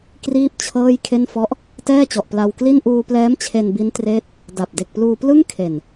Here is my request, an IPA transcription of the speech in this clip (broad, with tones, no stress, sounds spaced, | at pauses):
k r iː˥˩ p̚ t͡ɕʰ ɤː˥˩ j kʰ e˥˩ n f ɔ˦˥ ʔ | t ɛː˥˩ t͡ɕ ɔ˨˩ ʔ p l a˧ w k l i˥˩ n ʔ uː˧ p l ɛː˦˥ m t͡ɕʰ e˧ n b i˦˥ n t r eː˦˥ t̚ | d a˨˩ p̚ d e˨˩ k̚ p l uː˧ p l ɯ˥˩ ŋ kʰ e˨˩ n